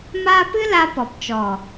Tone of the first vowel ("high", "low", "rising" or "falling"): high